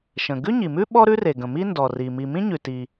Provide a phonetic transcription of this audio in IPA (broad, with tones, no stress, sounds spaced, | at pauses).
ʃ ə̃˩ ɡ ʉ˥ ɲ i˩ m ʉ˥ ɓ ɔ˥ ɾ ʉ˥ r e˩ ɡ ə̃˩ m i˥ n d ɔ˩ r i˩ m i˩ m ĩ˥ ɲ ʉ˩ t i˩